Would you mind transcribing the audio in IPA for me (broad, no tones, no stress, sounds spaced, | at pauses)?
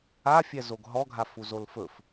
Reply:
a fʲ ɛ z o ɡ ɦ ɔ ɡʱ a f u z o l f ɵ f